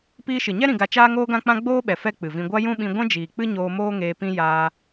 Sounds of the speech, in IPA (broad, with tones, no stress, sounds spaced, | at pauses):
p iː˧ ʃ ɨ˨ ɲ ɛ˦ ɾ ĩ˧ ɡ a˧ t͡ʃ aː˦ ŋ oː˦ ɡ ã˦ k͡p ã˦ ɡ͡b oː˦ ɓ ɛ˨ f ɛ˦ k͡p ɨ˨ v ĩ˧ ɡʷ a˦ j ũ˦ ɓ ĩ˧ ɡʷ ɛ̃˦ d͡ʒ iː˨ k͡p ɨ˦ ɲ oː˧ m oː˦ ŋ eː˧ p ĩ˦ j aː˧